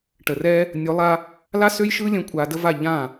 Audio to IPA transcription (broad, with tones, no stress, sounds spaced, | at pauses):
ʈ ə˨ r ɛ˦ | nʲ o˨˦ lˠ a˧ | l a˦ s ø˦ j ʃ ɯ˦ lʲ ə̃˧ kʷʼ a˧ d ə˦ v a˦˨ ʎ ã˦˨